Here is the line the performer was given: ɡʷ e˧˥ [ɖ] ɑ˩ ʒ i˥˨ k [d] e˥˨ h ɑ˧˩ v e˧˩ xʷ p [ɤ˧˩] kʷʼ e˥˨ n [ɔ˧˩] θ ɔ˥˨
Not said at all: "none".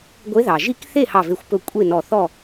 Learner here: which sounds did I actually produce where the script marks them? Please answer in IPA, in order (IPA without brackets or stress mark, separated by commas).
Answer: ð, θ, ɵ˧˩, ɔ˧˩